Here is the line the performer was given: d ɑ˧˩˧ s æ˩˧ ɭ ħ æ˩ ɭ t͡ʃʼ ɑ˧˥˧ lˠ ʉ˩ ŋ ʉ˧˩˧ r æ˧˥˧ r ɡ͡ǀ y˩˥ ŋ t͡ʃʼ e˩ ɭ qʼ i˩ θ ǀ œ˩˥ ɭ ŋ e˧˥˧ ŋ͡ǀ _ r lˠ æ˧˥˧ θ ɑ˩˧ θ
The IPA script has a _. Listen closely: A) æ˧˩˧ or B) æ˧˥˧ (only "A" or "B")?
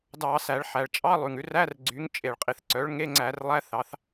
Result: A